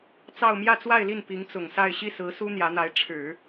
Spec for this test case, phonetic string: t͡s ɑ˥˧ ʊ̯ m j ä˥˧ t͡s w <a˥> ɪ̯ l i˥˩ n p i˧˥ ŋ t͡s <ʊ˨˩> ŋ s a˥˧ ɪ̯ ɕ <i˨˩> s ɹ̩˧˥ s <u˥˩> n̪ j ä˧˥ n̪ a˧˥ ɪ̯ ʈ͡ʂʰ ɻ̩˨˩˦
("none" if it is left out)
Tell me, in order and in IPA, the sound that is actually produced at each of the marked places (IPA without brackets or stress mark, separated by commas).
a˥˧, ʊ˨˩, i˥˩, u˥